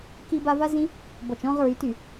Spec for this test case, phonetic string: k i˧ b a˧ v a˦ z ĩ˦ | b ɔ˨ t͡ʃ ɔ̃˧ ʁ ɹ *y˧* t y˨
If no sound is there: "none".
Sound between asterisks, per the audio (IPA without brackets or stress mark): y˨˦